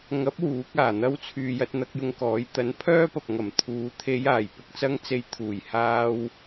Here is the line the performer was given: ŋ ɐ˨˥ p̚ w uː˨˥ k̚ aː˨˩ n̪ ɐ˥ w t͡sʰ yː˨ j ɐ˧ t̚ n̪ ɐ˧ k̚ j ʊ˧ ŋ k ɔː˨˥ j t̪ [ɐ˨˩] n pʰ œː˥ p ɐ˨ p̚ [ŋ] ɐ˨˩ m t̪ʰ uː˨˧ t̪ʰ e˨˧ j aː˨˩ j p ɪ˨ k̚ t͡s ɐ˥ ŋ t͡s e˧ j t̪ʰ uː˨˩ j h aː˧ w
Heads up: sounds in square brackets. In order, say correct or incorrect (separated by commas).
incorrect, correct